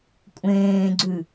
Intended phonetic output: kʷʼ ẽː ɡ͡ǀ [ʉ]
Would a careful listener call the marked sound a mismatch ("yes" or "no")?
no